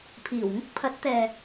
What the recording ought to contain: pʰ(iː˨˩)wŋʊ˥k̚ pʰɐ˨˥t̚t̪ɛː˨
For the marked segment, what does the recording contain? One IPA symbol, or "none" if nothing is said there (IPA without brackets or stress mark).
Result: iː˨˩